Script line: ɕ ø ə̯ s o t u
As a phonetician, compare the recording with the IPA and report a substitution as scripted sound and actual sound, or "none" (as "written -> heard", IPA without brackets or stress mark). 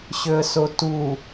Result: none